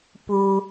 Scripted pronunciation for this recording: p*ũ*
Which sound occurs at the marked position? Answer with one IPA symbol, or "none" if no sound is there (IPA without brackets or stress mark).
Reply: u